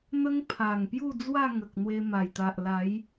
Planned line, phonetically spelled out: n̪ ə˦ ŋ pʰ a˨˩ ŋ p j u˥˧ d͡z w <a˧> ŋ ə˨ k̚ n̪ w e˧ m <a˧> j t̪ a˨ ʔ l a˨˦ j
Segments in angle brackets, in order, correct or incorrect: incorrect, incorrect

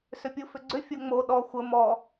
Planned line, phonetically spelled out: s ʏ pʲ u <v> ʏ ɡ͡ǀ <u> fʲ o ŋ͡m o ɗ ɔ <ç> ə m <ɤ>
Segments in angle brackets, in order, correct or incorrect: incorrect, incorrect, incorrect, incorrect

